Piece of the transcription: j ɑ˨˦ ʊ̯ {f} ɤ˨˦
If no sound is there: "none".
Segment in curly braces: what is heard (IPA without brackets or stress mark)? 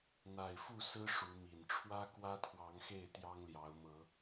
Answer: m